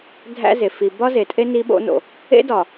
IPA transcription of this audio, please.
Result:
dʱ æ̰˦ z e˨ f i˨ b ɒ˦ z e˨ tʼ e˦ n i˦ ɓ o̰˦ n o̰˨ | ḛ˦ d ɒ˨

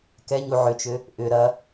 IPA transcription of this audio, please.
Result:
k ɛ ɲ u ʕ ʏ t͡ʃ ʏ | ʔ ʏ ɾ ɐ

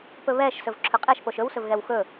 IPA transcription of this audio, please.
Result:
p ɵ β ɛ ʃ s ɵ v ǁʰ ɵ qʼ ɛ ʃ p o ʃ ɵ w s ɵ v ɣ ɛ w x ɵ

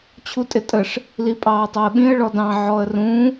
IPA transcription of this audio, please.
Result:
t͡ɕʰ u tʼ ɪ tʼ ə ʂ | l i pʼ ɑː tˤ ɑ ə̯ ɓ ĩ ə̯ ɭ ɔ d ɑ̃ ʕ ɔ ə̯ r ũ

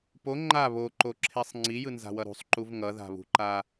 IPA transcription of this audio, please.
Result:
p o ŋ͡ǃ a β o ǃ o ǁʰ e sˤ ŋ͡ǀ i j ɯ n z a̤ w ʌ ɾ ṳ sˤ ǃ u v ŋ ʌ ð a̤ β ṳ ǃ a

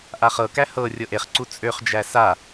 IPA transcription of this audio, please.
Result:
ʔ a χ ɤ k æ h ɤ rʲ ɤ ʔ e χ ǀ u t͡sʼ ø χ d͡ʒ æ s a

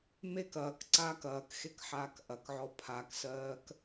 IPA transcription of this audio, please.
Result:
m e k ɐː k ǀ aː k ɐː k x e k ħ aː k ʔ ɐ k ʕ ɔ pʰ a k s ɜː k

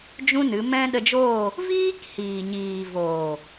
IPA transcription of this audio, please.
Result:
d͡ʒ ũ˦ n ɨ˨˦ m ɛ̃˦ ɗ ə˧ d͡ʒ oː˦˨ | v iː˦ k h iː˨ ɲ iː˨ v oː˨

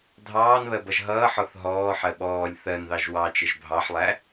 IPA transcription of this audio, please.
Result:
dʱ ɑː n β ɜ b ʌ ʒ ɦ ʌː ħ ɔ θ ɦ ɔː ħ ɜ ɓ ɔː lʲ θ ɜ n ð ɑ ʒ w ɑ t͡ʃ ɪ ʒ bʱ ɑ ħ lˠ æ

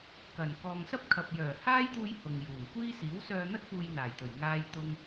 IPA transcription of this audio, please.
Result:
k ɐ˨˩ n k ɔː˨ ŋ s ɐ˥ p̚ kʰ ɐ˨ p̚ j œː˨˩ h aː˥ j t̪ uː˧ j h ʊ˨ ŋ j uː˨˩ n kʷ iː˥ s iː˨˥ w s œː˧ n̪ ɐ˥ t̚ p uː˧ j n̪ aː˨˩ j t̪ ɵ˨˩ ɥ ŋ aː˧ j t̪ ʊ˧ ŋ

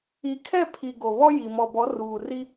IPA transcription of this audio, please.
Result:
i˨ kʰ ɛ˦˨ pʰ i˨ ɡ o˨ β ɔ˦ j i˨ m ɔ˨ b ɔ˨˦ r uː˨ r i˦

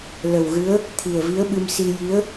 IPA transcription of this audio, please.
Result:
l ə˨˩ w ɣ ɨ˧˥ ə̯ | t̪ʰ i˨˩ ə̯ v i˧˥ ə̯ ɓ ɨ˧ m s i˧ j i˧˥ ə̯

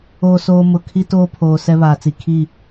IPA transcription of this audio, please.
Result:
oː˨ s oː˨ m ʊ˨ kʰ i˦ t oː˦ pʰ oː˨ s ɛ˦ β aː˨ t͡s i˨ kʰ i˦˨

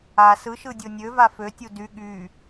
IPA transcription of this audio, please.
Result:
a s ɯ ʃ ɯ dʲ o nʲ ø v a f ø tʲ u d y ɠ y

